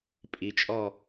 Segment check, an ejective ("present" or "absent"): present